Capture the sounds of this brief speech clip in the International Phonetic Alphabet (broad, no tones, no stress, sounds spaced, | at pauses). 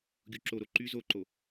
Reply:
ɡʲ u ǁ o ɾ o ǃ y z o ǃ o